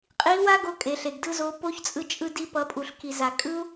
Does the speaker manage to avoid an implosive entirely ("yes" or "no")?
yes